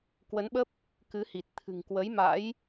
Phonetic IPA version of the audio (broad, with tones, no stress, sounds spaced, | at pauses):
k w ə˨˦ n ɓ ə˦˥ p̚ | k ɨ˨˦ h i˨˩ t̚ t̪ʰ ɨ̤˨˩ ŋ k w ə˨˦ j m a̰˧˥ j